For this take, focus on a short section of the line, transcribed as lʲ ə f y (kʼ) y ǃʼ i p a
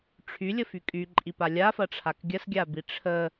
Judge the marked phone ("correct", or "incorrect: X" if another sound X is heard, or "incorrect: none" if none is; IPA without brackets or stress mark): correct